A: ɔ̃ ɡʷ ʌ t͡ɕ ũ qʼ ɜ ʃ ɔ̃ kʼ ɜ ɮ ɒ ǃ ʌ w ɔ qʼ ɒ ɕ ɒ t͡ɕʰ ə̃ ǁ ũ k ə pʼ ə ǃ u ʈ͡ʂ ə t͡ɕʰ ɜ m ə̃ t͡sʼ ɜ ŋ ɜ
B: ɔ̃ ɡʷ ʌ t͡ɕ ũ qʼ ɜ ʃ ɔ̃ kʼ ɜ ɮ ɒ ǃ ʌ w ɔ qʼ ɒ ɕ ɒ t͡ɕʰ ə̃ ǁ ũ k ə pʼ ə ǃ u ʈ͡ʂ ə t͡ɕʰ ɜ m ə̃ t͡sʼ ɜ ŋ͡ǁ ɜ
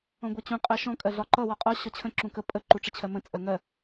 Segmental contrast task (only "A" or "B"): A